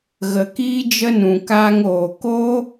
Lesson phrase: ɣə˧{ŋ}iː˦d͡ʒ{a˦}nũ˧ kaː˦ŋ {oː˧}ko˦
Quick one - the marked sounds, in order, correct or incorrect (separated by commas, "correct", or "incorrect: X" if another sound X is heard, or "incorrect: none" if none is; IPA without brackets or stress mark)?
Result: incorrect: k, incorrect: ə˦, correct